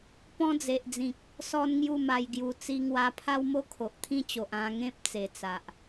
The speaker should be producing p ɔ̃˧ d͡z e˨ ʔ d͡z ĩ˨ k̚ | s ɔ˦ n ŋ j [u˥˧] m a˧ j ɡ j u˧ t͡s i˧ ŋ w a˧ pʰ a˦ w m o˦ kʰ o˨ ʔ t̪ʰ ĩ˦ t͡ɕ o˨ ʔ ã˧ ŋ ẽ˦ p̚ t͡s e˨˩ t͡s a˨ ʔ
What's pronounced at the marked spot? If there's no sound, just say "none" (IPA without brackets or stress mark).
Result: u˥˧